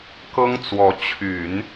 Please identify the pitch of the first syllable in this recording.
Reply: high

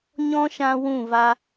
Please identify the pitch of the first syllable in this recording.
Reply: high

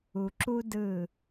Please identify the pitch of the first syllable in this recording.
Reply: low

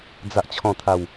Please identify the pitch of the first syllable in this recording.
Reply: low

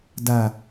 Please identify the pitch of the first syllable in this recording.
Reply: low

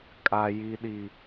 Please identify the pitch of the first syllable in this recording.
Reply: high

